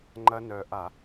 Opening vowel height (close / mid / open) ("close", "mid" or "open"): open